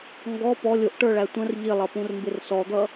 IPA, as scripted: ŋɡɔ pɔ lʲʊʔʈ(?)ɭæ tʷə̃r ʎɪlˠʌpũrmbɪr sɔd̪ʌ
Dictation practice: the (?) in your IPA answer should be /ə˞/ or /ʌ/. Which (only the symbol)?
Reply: ə˞